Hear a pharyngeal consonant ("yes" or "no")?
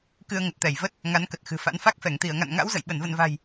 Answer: no